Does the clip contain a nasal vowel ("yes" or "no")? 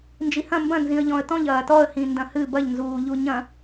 yes